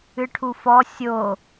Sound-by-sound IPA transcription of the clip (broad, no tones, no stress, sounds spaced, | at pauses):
ɨ ʈʰ u f ɔ sʲ o